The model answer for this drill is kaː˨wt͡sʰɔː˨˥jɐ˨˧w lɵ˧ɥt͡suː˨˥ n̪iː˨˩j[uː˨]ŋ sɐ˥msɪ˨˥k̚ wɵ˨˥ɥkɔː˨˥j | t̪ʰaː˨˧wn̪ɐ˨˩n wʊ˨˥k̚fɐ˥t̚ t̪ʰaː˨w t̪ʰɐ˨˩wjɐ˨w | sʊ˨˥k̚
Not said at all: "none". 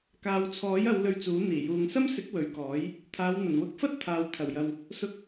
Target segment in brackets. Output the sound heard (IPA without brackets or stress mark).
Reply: uː˨